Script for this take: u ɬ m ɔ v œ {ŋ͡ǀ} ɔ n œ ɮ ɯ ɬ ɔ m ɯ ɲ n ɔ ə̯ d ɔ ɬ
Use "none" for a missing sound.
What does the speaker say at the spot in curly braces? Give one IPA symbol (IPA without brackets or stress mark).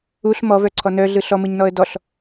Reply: ǀʰ